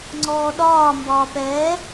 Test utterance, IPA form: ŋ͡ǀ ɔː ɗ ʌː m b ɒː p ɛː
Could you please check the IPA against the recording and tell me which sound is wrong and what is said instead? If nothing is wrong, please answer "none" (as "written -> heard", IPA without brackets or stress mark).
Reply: ʌː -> ɒː